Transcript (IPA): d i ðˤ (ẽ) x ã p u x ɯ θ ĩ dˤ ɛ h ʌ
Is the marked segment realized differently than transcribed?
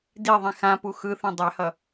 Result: yes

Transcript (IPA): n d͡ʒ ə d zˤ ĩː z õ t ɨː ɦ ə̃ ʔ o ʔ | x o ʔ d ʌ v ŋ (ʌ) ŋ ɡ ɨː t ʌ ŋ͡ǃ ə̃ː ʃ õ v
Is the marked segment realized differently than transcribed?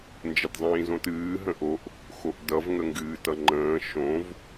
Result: yes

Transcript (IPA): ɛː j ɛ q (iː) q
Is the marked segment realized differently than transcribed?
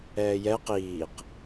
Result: no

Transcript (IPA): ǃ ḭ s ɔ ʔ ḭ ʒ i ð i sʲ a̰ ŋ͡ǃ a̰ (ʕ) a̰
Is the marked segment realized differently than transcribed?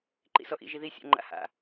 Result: yes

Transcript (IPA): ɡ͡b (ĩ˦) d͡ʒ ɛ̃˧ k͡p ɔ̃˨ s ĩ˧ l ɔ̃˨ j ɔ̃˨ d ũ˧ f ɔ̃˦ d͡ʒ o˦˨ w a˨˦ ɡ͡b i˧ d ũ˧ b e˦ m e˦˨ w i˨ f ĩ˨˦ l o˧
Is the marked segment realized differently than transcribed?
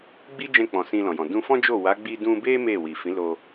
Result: yes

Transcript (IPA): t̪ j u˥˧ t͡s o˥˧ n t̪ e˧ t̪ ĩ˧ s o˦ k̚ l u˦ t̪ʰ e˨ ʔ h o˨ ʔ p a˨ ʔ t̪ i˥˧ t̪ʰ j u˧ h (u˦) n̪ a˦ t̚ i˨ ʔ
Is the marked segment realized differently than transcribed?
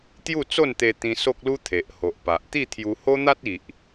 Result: yes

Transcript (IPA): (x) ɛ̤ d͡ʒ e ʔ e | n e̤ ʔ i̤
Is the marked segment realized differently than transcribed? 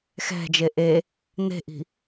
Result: no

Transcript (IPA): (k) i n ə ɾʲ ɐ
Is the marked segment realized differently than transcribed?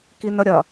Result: no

